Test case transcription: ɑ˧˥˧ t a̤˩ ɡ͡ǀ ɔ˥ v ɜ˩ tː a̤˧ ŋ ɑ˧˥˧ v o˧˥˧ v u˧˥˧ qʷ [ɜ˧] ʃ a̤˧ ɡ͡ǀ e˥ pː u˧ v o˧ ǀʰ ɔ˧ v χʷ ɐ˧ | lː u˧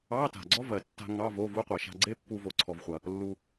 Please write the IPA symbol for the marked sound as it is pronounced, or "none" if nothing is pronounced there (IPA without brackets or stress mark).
ɜ˩